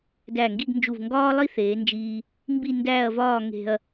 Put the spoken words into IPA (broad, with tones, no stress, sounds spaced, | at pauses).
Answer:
d æ˧˩ ŋ ɡ i˥˧ ɡ n d͡ʒ u˧˩ v ŋ ɡ ɒː˥ lˠ i˥ θ eː˩˧ n d͡ʒ iː˧ | m b i˥˧ n d æː˥˧ ɐ̯ v ɒː˥˧ ŋ e̤˧ ɐ̯